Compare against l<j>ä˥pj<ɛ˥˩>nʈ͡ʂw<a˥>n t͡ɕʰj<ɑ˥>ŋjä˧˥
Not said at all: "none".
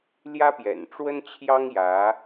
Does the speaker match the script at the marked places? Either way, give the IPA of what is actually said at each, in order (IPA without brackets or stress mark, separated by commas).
j, ɛ̰˨˩, ə˥, ɑ˥